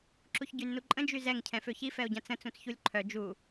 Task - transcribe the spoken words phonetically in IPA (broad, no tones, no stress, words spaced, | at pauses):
ǁuçɟynːuǃʼə̃ d͡ʒyzɛŋ cʰɛ̃føçi fɛo̯ɟãt͡sə̃ t͡sũt͡sçulʲǃʰœ d͡ʒu